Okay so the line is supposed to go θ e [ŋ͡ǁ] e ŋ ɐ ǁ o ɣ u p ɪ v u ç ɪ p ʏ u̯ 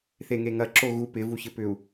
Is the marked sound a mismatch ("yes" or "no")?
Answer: yes